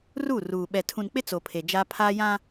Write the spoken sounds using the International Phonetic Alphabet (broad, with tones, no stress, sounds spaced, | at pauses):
r u˦˨ r uː˨ ɓ ɛ˨ tʰ ũ˨ n k͡p ɪ˦ t͡s o˨ pʰ e˨ d͡ʒ a˦ pʰ aː˦ j ã˦